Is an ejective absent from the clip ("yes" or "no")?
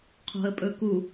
no